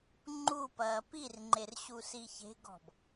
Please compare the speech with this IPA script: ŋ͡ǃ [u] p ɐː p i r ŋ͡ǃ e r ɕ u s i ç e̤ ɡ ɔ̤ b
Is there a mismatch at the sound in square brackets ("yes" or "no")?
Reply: no